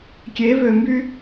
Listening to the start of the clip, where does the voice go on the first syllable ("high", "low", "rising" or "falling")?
rising